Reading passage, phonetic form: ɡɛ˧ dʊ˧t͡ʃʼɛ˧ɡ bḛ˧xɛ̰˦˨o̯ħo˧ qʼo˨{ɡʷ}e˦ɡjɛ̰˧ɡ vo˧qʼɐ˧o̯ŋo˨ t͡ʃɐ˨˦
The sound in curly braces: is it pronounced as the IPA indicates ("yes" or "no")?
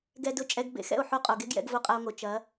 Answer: no